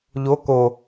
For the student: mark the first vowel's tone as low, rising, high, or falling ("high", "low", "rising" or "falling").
rising